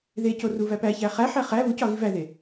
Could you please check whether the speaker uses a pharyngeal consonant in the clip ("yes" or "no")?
yes